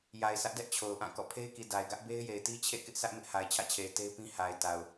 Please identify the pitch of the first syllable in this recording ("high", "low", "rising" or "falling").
low